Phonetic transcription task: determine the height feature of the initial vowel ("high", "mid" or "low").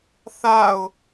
low